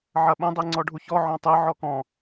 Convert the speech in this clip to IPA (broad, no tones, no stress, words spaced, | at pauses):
ʕɐɓə̃ dˤeŋ͡ǀɔɖʱuçɔ ʕɔ̃tˤɨ ʕɔkɔ̃